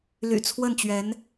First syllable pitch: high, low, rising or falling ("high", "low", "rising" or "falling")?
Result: low